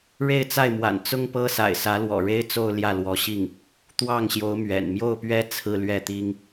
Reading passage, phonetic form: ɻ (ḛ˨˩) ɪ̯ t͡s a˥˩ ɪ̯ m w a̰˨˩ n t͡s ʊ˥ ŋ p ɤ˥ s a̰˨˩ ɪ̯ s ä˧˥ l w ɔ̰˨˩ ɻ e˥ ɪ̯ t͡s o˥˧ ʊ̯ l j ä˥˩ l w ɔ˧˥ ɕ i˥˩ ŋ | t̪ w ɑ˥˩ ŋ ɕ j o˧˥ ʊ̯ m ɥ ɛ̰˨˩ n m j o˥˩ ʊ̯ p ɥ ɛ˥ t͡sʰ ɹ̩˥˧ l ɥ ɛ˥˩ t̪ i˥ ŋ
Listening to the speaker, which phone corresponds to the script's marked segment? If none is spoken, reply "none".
e˥˧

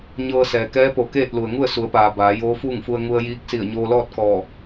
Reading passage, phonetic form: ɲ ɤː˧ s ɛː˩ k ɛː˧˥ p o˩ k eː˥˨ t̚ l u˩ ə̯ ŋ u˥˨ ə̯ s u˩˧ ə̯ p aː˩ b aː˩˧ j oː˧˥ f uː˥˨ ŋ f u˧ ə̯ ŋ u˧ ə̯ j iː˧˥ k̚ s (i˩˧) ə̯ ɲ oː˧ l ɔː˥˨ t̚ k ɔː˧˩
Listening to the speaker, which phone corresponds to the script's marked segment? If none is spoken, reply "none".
i˧˩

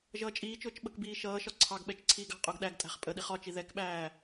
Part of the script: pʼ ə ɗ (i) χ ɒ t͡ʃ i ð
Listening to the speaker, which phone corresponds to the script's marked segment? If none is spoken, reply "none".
i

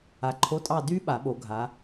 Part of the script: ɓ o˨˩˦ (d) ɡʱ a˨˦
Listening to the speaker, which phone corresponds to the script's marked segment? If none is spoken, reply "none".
none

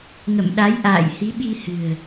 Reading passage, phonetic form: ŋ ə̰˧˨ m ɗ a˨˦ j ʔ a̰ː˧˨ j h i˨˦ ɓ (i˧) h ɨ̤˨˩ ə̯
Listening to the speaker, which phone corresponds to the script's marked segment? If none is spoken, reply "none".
i˧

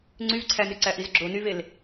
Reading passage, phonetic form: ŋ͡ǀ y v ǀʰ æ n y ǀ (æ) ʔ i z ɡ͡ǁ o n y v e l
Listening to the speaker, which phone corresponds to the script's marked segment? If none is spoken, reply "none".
æ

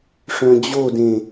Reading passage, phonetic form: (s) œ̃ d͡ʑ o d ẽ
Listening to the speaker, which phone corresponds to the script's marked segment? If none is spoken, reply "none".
ʂ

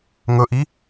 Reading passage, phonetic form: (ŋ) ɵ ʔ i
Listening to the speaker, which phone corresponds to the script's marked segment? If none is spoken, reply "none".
ŋ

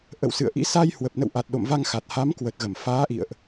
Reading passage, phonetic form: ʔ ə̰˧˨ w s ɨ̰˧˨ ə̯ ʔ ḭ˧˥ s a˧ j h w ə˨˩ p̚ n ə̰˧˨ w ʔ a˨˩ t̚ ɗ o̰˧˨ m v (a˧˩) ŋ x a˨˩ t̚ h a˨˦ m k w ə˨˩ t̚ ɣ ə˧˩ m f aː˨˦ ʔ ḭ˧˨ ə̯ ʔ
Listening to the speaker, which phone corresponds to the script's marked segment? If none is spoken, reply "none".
a˧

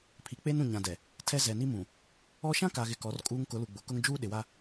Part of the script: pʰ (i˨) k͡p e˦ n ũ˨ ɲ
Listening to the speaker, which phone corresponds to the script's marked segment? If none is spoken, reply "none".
i˨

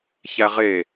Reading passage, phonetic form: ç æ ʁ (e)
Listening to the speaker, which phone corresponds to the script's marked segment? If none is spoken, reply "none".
e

